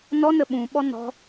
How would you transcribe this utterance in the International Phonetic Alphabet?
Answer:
nɔ nəɓũ ɓɔnɔ̤

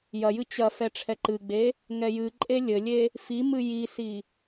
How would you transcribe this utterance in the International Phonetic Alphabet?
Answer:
jɐjɨ t͡ɕɐfɛ ʈ͡ʂʰɛǃɨɡ͡be | ŋɛjɨǃʼe lʲɘlʲe | fi mɨjisi

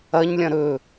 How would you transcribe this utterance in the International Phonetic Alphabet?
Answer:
ɐɲlʲɐ̃ ɾɵ

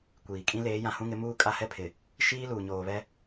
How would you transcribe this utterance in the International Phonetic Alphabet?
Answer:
kʷiː˨ kʼĩ˦leː˨˦ jã˨hũ˦ŋɪ˨˦ muː˦kʼa˦hɛ˦pʰɪ˨ | ʃiː˦ luː˨ɲoː˨βɛ˦

